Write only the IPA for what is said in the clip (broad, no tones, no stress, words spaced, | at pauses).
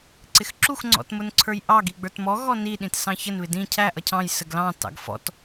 ǀɪxǁux ŋ͡ǀɔ̰tmʊnǀʰə˞jʔɑɡ iɡ͡bə˞tmɔ ɣɔni ɗĩtsɑ̃çən βɪdĩ cʰæ ʔʌcʰɑ̃j səɡlɑ̃ tɑ̰ɡfɔ̰t